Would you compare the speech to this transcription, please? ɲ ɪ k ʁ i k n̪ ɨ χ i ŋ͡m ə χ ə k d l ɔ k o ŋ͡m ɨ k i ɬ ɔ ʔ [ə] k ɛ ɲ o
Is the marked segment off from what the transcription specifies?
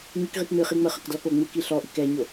yes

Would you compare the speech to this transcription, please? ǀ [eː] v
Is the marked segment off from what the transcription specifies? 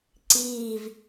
yes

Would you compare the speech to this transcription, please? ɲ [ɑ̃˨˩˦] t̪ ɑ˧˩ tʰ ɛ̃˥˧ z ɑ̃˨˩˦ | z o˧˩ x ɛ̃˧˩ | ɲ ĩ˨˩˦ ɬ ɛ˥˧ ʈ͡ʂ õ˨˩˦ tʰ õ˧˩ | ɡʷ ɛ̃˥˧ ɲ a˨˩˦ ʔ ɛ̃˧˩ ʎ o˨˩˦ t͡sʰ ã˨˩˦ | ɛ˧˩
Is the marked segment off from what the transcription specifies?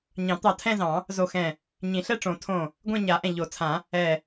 no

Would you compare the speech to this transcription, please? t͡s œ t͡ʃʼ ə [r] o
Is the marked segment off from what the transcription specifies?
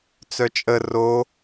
no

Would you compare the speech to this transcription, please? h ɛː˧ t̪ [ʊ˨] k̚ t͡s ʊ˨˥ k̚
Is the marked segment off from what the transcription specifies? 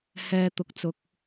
no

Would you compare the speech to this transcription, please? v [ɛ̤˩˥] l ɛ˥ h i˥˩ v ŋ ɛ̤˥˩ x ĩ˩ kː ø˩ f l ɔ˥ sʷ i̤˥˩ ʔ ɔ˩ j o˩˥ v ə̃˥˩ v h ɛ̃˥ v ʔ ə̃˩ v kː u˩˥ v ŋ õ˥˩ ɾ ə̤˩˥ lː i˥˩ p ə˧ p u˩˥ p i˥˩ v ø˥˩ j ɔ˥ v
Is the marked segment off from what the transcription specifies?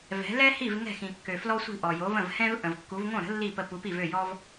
no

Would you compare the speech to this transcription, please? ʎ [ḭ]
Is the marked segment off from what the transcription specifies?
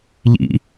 no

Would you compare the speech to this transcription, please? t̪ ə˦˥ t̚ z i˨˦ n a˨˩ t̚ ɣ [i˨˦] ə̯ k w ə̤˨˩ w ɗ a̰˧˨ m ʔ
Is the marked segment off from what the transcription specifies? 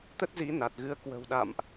yes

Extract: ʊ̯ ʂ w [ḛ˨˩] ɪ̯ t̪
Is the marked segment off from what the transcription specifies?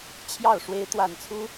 yes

